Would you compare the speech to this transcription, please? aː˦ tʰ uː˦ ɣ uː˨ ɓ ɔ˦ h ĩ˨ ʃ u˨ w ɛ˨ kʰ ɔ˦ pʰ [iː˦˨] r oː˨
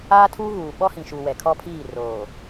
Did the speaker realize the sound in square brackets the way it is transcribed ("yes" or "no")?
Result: yes